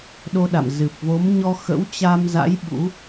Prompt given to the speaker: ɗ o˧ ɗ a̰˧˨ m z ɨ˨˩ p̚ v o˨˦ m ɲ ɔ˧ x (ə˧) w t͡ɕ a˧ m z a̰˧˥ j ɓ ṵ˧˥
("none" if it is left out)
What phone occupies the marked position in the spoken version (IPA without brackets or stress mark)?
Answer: ə̰˧˥